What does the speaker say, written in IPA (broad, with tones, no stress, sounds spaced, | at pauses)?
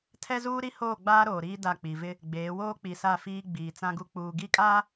tʰ ɛ˦ z uː˦ ɾ i˦ h oː˦˨ ɡ͡b aː˦ ɾ oː˨ ɾ iː˦ d a˦˨ k͡p i˨ v ɪ˦ | ɡ͡b eː˨˦ w oː˦ k͡p i˨ s a˦˨ f iː˦ ɡ͡b iː˨ t͡s ã˦ ɡ u˦ k͡p uː˨ ɡ i˦˨ kʼ aː˦